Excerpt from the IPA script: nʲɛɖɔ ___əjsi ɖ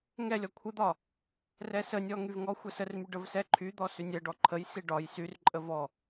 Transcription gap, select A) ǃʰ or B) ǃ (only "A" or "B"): A